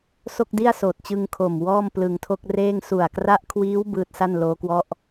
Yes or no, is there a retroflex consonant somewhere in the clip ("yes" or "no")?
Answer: no